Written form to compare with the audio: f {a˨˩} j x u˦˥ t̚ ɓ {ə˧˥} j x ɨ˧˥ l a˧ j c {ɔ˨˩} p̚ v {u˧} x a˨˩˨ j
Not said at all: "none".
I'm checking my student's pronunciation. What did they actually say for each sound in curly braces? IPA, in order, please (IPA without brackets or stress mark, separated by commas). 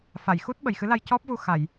a˨˩˨, ə˨˩, ɔ˦˥, u˧